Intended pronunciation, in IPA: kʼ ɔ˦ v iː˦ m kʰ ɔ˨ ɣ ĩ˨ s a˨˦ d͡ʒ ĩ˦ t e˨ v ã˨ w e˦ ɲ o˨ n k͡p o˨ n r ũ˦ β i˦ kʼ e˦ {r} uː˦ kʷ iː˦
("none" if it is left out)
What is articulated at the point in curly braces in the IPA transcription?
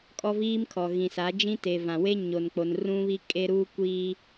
ɾ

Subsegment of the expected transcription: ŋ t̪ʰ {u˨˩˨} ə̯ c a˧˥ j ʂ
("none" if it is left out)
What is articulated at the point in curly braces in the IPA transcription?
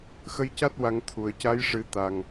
u˨˩˨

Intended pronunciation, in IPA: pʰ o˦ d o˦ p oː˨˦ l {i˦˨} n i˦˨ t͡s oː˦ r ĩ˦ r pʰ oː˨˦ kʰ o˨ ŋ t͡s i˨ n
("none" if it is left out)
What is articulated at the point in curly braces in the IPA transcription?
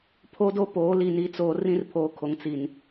i˦˨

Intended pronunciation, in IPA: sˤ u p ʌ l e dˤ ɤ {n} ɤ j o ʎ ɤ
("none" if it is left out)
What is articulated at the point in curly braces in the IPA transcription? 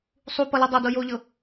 d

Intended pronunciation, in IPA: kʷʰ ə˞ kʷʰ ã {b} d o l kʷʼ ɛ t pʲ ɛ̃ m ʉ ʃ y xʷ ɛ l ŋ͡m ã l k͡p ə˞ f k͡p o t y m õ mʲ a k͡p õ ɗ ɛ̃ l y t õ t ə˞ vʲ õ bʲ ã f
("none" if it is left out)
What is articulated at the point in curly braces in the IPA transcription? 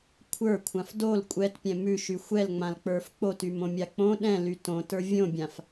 f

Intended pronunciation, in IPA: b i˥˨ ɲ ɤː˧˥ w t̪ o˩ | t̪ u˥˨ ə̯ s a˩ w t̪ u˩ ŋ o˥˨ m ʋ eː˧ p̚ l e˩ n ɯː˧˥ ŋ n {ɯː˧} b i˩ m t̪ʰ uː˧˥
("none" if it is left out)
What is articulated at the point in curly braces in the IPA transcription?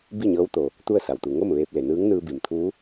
ɯː˧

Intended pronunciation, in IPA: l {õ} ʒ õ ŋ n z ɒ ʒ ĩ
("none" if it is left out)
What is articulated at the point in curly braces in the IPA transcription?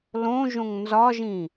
õ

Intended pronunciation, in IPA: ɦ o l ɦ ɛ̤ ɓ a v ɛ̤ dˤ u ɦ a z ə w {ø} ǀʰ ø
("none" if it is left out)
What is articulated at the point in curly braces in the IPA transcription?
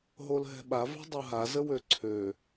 ø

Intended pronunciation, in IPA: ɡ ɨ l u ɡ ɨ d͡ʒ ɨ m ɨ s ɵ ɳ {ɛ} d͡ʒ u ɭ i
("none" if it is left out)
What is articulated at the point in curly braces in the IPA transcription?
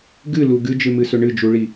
ɨ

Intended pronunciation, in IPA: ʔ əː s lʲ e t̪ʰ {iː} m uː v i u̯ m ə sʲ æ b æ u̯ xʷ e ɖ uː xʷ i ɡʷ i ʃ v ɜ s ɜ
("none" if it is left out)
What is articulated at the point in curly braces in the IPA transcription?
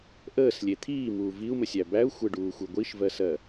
iː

